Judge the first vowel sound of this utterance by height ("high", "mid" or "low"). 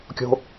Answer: mid